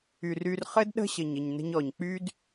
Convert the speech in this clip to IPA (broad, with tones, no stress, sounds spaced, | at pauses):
y˨ r y˧ r χ ɘ˦ d ɗ ə̤˦ ɕ ɘ˨ ɲ ɘ˨ ɲ n ə̤˧ ɲ ɔ˨ ɲ k͡p y˦ d